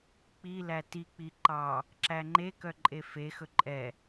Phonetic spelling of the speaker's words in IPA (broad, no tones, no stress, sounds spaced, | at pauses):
k͡p i l æ t i k͡p i ǃ ɑ | ǁ æ ŋ͡ǃ e k œ ǃʼ e f e x ɵ ǃʼ ɛ